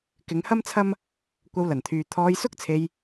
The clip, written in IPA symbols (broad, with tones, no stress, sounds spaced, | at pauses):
k ɪ˨˧ ŋ h ɐ˥ m t͡sʰ ɐ˥ m | kʷ ɐ˧ w l ɐ˨˩ n t̪ʰ yː˨ t̪ʰ ɔː˧ j s ʊ˥ k̚ t͡sʰ e˧ j